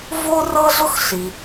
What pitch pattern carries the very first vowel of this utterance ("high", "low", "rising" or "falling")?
high